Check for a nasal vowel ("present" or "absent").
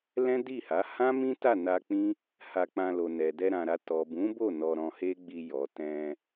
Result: present